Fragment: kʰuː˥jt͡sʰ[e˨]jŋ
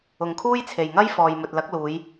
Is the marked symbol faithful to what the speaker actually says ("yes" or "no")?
yes